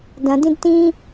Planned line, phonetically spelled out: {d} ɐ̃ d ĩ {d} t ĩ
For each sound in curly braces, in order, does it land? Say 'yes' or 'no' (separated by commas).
yes, yes